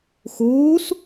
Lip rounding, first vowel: rounded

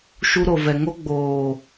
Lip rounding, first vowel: rounded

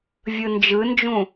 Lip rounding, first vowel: unrounded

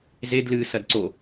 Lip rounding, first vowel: unrounded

